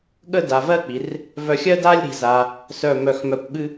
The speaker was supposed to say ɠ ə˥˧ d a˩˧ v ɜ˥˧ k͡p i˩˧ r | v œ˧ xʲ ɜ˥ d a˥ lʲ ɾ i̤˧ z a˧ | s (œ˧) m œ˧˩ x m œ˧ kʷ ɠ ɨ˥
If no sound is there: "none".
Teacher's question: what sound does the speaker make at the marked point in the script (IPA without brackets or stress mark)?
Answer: œ˧˩